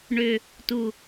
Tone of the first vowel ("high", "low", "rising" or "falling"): low